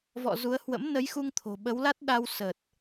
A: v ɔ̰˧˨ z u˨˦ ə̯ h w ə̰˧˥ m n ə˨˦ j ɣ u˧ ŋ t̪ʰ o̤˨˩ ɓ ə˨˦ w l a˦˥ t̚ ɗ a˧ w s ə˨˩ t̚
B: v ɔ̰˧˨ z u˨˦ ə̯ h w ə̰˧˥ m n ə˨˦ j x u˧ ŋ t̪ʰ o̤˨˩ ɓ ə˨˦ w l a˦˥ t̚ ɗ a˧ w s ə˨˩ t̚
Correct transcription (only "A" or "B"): B